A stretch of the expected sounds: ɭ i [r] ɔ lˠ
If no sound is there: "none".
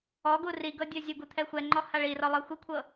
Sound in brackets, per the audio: r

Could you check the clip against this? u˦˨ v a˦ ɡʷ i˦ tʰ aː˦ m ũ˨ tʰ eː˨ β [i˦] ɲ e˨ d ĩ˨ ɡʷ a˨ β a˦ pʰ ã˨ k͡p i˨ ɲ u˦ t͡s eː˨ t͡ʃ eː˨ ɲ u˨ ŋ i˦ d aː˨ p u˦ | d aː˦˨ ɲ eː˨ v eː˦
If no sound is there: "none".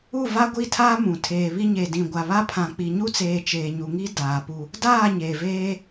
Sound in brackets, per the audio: i˦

